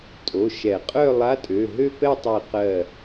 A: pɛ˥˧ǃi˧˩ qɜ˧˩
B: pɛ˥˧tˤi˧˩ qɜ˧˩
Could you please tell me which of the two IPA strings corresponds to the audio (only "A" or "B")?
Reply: B